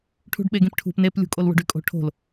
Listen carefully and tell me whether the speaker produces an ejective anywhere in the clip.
yes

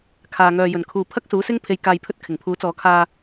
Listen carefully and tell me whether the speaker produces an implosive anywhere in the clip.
no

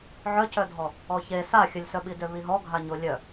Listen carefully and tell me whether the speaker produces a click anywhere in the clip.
no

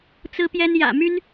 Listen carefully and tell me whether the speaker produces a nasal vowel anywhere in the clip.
no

